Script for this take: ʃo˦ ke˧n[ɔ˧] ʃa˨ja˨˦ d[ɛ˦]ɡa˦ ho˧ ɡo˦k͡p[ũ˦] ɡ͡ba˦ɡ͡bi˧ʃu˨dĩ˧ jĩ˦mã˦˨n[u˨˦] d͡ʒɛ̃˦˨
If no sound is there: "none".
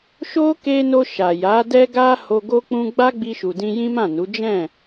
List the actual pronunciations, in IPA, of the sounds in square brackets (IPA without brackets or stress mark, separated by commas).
o˧, ɛ˦, ũ˦, u˨˦